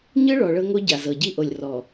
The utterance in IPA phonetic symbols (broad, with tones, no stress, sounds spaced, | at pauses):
ɲ ɯ˦ ɭ ɔ˨ ɭ ɤ˦ ŋ o˦ ɟ a˨ z ɤ˨ ɟ i˦ ʔ o˨ lʲ r ɔ˨